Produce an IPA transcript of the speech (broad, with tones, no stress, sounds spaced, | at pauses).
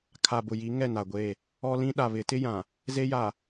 kʰ a˨ b ʊ˨ j i˨˦ ŋ ɛ˦˨ n a˨ ɡʷ e˦˨ | ɔ˦ l ĩ˦ ɗ a˨ β ɪ˨˦ t ɪ˦ j ã˨ | z e˦ j a˨